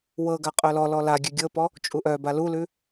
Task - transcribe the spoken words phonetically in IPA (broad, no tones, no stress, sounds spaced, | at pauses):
w ɤ ɡ a qʼ œ l ɔ l ɔ l a ɡʲ ʉ ɡʲ ɤ p ɔ | t͡ʃʼ u ʔ œ b a l u l ʉ